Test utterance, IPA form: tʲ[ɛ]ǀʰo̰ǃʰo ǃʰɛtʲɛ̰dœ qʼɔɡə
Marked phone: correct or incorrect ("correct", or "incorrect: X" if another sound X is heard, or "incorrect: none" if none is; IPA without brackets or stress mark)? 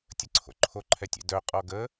incorrect: ə